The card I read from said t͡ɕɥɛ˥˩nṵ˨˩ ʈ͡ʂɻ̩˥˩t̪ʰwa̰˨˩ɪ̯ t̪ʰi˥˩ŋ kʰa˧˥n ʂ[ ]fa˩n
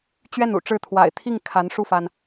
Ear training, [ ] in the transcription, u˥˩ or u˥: u˥˩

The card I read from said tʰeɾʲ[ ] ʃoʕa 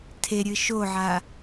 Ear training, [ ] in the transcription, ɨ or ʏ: ɨ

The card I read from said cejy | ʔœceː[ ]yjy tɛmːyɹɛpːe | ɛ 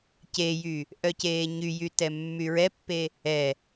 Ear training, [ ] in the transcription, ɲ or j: ɲ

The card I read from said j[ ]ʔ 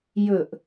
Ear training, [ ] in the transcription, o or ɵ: ɵ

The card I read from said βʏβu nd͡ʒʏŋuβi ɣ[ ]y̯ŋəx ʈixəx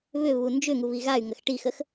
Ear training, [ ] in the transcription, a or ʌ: a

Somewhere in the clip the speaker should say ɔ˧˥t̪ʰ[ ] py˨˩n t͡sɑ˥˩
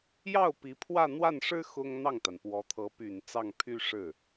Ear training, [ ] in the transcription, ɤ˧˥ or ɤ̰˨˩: ɤ˧˥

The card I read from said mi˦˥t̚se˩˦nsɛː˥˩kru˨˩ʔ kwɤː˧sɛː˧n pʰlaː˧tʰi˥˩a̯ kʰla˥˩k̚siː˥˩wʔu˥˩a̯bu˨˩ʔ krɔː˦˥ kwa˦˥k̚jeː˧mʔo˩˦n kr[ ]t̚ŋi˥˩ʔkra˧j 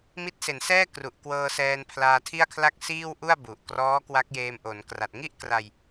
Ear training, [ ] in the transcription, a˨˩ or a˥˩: a˨˩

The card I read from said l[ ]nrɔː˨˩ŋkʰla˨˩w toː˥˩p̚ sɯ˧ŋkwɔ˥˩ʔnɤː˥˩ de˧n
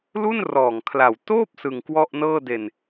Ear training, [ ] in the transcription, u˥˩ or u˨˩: u˥˩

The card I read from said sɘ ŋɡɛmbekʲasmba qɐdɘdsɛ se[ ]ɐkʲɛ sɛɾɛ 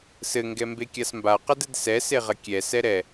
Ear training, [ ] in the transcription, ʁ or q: ʁ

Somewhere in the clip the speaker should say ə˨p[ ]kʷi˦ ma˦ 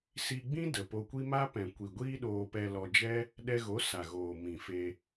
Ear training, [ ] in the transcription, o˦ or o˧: o˧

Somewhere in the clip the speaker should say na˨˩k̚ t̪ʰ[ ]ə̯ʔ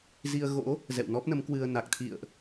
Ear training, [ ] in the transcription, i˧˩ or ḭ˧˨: ḭ˧˨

